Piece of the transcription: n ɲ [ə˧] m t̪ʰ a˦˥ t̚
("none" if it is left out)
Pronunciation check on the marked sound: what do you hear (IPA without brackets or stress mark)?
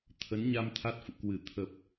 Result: a˧